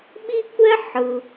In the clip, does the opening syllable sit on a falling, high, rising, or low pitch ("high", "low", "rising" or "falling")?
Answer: high